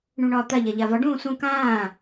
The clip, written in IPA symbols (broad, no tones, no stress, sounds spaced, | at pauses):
ɳ ũ ɳ ɒː t̪ a ʎ a ʎ a v ɒ ɖ ũː s ũ k ãː